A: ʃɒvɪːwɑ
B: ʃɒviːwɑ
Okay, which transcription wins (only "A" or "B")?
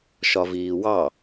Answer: B